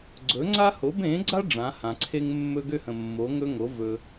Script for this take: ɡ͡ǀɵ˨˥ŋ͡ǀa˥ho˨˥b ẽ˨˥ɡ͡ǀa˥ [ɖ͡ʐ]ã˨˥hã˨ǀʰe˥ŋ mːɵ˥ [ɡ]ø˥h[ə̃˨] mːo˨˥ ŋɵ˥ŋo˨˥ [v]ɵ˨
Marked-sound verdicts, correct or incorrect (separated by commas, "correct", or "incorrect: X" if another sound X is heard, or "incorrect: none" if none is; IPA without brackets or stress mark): correct, correct, correct, correct